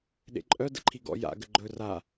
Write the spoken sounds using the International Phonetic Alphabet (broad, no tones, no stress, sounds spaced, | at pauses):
ɗ ḛ ǃʼ œ d ə̰ ǃʰ i ɡ ɔ̰ j a̰ ɡ ə ɡ͡ǃ ɵ r a